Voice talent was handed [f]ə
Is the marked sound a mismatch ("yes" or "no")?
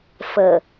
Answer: no